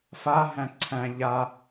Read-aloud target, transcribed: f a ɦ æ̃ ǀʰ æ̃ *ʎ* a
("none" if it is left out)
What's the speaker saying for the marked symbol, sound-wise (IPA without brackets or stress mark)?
ʎ